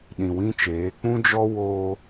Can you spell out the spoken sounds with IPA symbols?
ɗ ĩ˨ w ĩ˦ t͡ʃ eː˨˦ k͡p ũ˦ d͡ʒ ɔ˦ w oː˦

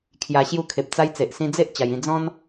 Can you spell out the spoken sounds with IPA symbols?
kʰ j a˧ ɕ j u˧ kʰ e˨ p̚ t͡s a˧ j t͡s e˨ ʔ s ĩ˧ d͡z e˦ ʔ t͡ɕ a˧ j ĩ˥˧ d͡z ɔ̃˦ n

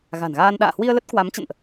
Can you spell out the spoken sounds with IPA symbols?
ɣ a̤˨˩ n ɣ aː˧ n ɗ a̰ː˧˨ h w i˧ ə̯ l ə˦˥ t̚ k w a˨˦ m t͡ɕ ə̰˧˨ n ʔ

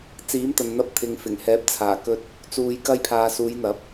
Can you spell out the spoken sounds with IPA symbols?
t͡s iː˨˥ m t̪ ɐ˨ n n̪ ɐ˧ p̚ t̪ʰ ɪ˨ ŋ f ɪ˨˩ ŋ h ɛː˨˥ p̚ t͡sʰ aː˨˩ k ɵ˧ t̚ | t͡s uː˧ j k ɐ˥ j pʰ aː˧ s uː˨˧ j n̪ ɐ˨˥ p̚

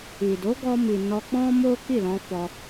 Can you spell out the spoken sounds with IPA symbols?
i˨ d o˨˦ ɡ ɔ˧ m i˨ n ɔ˧ k͡p ɔ̃˦ m o˦ k i˦˨ l ɔ̃˧ f ɔ˧

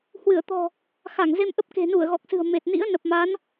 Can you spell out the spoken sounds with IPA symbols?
h w ɨ˧˩ ə̯ t̪ ɔ̤˨˩ | x a˧˩ ŋ z e˧ m ʔ ə˦˥ p̚ k e̤˨˩ n u˧˩ ə̯ ɣ ɔ˨˩ k̚ s ɨ̤˨˩ ə̯ m e˨˩ t̚ n ḭ˧˥ ə̯ n ə˨˩ p̚ m a˨˦ n

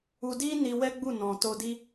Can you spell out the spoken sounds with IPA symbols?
u˧ d i˦ n i˧ w ɛ˦ ɡ͡b u˦˨ n ɔ̃˨ t o˧ d i˦

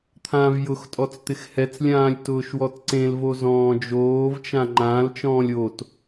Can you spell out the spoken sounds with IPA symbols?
t̪ʰ ãː v j ʊ x tʼ ɔ t͡s t̪ ɪ x h ɛ t͡s lʲ ãː lʲ t ʊː ʃ w ɔ t ǀ ẽ l v o z ɔ̃ː d͡ʒ oː v t͡ʃ ã ŋ͡ǃ ãː l t͡ʃ ɔ̃ː lʲ o t

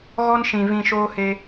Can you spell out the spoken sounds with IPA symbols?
ɣ ɔ˦ n ʃ ĩ˧ v ĩ˧ ʃ oː˦ h e˦

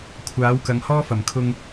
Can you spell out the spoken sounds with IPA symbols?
kʷʰ aː˨˥ w k ɐ˨˧ ŋ h ɔː˥ f ɐ˨˩ m kʰ ʊ˧ ŋ

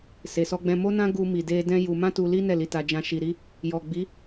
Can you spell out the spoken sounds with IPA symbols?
s e˨ s ɔ˧ ɡ͡b ɛ̃˧ m o˦ n ã˦ ɡ u˧ m i˨ d e˧ d ɛ̃˦ j u˧ m ã˦ t u˧ l i˦ n ɛ˦˨ l i˧ t a˧ d͡ʒ ã˧ ʃ i˧ ɾ i˦ | j ɔ˨ ɡ͡b i˨˦

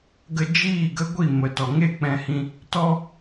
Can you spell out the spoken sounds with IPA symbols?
ɡ ə˧ d͡ʒ iː˦˨ ɡ ə˦ ɡʷ i˦˨ m ə˨ t ɔ˨ ŋ e˦˨ k͡p ɛ̃˧ h ĩ˧ | t ɔ˦

